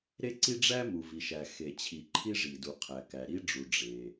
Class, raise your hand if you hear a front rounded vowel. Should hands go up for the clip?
no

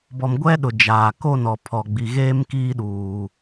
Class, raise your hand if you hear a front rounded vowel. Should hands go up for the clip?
no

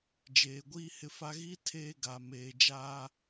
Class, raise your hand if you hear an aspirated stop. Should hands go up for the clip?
yes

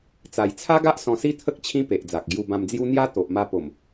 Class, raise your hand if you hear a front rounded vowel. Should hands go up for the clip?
no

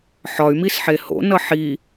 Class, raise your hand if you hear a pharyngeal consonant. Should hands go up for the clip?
yes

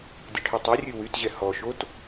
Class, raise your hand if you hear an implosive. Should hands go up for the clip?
no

